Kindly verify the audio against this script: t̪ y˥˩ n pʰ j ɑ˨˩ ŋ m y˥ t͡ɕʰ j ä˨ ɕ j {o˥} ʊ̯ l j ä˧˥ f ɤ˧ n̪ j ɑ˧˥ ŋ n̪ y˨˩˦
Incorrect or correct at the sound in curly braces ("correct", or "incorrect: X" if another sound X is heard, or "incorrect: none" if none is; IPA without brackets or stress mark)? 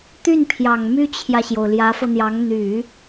incorrect: o˩